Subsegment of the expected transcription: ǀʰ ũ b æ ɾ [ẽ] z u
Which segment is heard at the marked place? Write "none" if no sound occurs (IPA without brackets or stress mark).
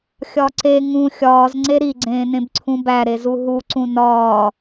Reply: e